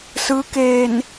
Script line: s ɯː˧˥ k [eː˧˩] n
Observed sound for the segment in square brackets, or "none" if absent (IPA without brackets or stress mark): eː˧˩